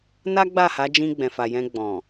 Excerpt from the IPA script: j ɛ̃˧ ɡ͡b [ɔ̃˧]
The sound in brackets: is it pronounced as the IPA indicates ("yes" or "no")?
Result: no